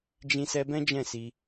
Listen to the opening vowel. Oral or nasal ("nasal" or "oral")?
nasal